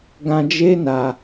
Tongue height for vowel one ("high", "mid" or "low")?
low